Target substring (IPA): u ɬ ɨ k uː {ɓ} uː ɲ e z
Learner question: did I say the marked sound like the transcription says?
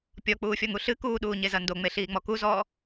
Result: no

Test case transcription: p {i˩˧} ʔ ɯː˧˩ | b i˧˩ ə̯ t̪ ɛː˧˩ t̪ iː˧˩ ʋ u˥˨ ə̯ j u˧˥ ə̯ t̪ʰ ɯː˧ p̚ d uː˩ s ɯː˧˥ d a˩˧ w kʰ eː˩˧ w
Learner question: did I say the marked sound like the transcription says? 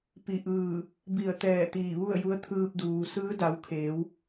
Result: no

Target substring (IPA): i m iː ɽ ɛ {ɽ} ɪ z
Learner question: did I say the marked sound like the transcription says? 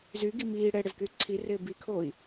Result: yes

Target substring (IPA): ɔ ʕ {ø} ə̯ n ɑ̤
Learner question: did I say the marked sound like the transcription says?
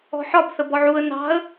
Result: no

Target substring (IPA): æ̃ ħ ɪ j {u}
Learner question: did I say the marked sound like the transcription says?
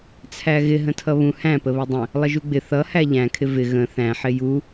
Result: yes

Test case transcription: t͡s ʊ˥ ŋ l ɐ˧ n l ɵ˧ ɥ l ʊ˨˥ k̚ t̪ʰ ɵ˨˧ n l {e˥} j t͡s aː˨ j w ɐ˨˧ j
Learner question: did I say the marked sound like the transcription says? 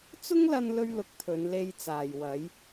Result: no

